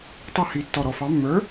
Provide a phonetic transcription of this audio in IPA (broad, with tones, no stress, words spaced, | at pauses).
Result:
tˤʌ˥˩hi˧˩ tːɔ˧˩ɾɔ˧˩fɑ˨˥ mːə˞˨˥